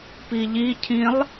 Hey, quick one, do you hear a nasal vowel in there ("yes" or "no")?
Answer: yes